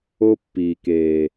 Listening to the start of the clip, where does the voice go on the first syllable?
high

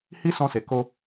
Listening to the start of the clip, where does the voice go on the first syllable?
high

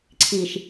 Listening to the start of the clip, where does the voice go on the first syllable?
low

